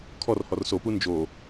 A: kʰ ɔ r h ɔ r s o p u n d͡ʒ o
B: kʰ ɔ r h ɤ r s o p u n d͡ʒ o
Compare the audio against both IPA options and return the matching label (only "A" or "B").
A